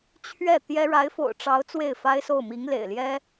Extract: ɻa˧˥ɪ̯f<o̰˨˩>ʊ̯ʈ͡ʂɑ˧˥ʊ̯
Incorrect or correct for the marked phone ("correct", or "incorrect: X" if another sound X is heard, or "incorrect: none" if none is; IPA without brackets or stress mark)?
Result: correct